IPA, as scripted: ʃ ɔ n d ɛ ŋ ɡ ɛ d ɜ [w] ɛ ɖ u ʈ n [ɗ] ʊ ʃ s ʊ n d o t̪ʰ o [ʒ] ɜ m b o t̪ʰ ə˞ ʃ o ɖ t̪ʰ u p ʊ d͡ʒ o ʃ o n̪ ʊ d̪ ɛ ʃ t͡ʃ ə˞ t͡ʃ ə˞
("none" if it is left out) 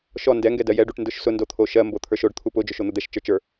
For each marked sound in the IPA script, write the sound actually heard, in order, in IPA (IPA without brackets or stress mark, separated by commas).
j, d, ʃ